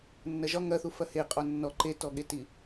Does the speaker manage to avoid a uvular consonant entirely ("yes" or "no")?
no